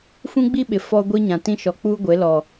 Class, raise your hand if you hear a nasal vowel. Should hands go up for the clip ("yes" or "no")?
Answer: yes